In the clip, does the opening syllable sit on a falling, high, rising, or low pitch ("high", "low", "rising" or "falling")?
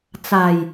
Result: low